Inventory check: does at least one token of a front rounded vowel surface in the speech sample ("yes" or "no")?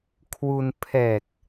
no